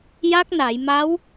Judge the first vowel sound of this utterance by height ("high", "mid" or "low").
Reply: low